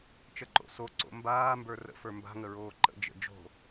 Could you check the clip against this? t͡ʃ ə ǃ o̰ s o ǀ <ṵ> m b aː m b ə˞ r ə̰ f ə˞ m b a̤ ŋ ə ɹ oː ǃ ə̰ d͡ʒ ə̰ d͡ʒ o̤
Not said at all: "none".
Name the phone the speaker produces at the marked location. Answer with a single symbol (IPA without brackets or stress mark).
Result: o̰